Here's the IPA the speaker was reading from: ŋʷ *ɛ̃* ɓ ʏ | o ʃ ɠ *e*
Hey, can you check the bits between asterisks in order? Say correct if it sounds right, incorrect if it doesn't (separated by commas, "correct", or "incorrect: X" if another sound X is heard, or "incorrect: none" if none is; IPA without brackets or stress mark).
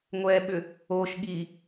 incorrect: ɛ, incorrect: i